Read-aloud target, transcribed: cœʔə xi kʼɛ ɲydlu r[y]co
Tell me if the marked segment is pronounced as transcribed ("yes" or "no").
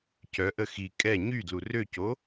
no